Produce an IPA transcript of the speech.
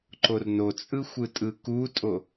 ǃornot͡sʼɯ xʷɯtʼɯkutʼo

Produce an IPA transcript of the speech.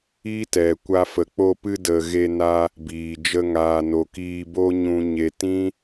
i˦tɛ˨kʷa˧ fə˨k͡po˧pɨ˧də˨ ɣe˧na˧ | biː˨d͡ʒə˧ ŋaː˨no˨ kiː˧bo˦ ɲũ˧ɲe˧ tĩ˦

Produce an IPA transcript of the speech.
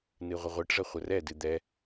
nɨʁʷəʁʷɨʈʐə χʷərɛdɨ d̪ɛ

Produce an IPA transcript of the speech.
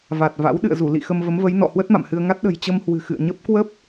va˨˩t̚ va̰˧˥w ɗɨ̰˧˨ə̯zu˧˩lḭ˧˨ xə˧mvə˨˦mvə˨˦jnɔ̰˧˨ hwə˦˥t̚ma̰˧˨mhɨ˧ə̯ŋa˦˥t̚ ɗə̤˨˩jt͡ɕə˧mhwɨ̤˨˩ xɨ̰˧˨ə̯ɲə˦˥p̚ kwə˦˥p̚

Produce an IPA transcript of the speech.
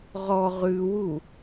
ʁɔ ʁʉwu

